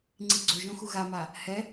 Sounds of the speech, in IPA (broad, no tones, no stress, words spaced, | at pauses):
ŋ͡ǀiɡ͡ǀoʒõxu ɣama | hɛ